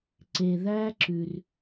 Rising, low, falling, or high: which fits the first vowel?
low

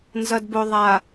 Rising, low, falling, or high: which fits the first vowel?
low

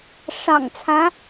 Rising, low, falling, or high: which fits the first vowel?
low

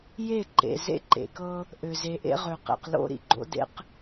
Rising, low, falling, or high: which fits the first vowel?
falling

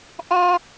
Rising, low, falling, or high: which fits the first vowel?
high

